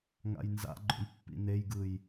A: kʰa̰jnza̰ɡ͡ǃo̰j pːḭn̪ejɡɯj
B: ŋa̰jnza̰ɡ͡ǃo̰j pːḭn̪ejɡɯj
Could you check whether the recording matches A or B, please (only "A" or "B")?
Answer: B